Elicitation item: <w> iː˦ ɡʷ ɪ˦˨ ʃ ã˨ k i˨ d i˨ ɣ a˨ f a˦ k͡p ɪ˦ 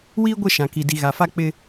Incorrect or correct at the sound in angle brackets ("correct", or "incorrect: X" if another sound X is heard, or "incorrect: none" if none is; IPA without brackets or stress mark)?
correct